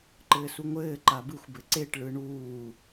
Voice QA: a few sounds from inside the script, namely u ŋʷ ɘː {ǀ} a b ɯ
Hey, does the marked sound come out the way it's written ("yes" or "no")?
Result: no